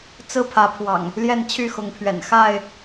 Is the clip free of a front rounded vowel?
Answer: no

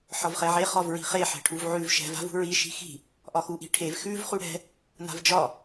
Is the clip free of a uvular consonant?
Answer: no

